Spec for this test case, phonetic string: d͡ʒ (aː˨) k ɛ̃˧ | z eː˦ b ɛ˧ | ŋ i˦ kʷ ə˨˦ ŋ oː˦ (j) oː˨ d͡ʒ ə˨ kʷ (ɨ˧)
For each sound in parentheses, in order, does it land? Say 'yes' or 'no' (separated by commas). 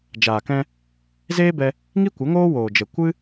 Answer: yes, no, yes